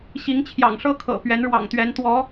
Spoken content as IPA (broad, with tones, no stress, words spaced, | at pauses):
ɕi˧˥ŋt͡ɕʰjɑ̰˨˩ŋʂɤ˥ kʰɤ̰˨˩ pɥɛ˧˥nɻwɑ̰˨˩ŋt̪ɥɛ˧˥n t̪wɔ˧˥